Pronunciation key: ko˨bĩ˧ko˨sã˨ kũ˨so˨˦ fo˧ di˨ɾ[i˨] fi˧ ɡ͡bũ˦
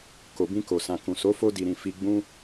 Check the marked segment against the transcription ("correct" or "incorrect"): incorrect